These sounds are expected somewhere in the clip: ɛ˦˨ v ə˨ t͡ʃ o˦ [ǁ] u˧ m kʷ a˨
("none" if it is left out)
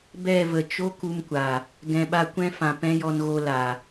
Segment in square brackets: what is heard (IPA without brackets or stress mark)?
k